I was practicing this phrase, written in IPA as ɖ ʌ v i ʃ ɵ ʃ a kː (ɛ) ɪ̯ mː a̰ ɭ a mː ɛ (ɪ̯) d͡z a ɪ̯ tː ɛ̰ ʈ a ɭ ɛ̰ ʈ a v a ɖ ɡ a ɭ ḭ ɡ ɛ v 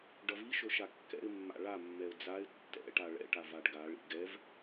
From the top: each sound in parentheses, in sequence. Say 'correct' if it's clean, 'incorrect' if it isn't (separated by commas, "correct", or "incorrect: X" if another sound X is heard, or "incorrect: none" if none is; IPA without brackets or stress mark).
incorrect: ɛ̰, incorrect: ʊ̯